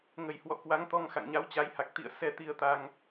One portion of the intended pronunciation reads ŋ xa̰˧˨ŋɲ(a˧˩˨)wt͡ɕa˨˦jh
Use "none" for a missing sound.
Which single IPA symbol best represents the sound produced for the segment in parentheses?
a˨˦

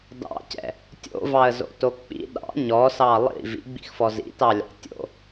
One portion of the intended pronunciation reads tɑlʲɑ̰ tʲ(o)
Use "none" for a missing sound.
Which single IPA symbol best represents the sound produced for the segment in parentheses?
o̰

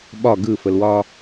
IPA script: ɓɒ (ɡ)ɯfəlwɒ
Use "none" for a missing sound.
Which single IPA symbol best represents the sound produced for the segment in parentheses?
ɡ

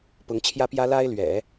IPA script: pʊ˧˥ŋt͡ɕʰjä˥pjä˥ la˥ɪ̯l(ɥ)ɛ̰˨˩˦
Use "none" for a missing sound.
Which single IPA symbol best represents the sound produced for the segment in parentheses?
ɥ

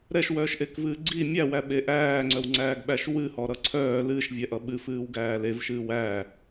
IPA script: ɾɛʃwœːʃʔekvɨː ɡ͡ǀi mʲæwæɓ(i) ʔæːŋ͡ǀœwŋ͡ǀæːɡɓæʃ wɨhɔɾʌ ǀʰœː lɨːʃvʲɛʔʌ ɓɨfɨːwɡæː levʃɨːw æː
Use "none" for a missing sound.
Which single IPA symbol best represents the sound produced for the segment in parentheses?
e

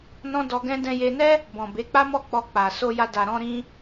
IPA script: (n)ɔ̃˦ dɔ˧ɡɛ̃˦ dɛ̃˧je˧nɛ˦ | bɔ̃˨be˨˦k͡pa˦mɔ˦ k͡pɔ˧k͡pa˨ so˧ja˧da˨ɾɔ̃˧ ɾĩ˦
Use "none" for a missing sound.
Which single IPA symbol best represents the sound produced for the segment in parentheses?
n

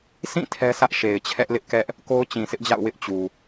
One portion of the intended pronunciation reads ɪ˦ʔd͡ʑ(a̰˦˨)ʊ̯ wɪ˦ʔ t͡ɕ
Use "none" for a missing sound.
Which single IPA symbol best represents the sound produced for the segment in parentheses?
a̰˦˨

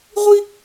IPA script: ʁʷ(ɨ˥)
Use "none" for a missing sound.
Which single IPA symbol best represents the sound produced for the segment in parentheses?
i˥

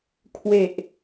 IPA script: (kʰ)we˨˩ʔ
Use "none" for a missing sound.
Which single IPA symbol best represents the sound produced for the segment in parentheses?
kʰ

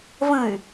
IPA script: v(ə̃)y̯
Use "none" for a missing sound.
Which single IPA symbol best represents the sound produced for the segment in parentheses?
ə̃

